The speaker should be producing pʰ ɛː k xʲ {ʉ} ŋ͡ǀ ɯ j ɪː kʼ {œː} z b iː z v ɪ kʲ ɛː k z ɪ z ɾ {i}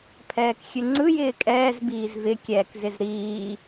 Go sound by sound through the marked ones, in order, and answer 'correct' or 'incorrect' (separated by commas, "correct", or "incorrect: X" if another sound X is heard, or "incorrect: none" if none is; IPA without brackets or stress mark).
correct, incorrect: ɛː, incorrect: iː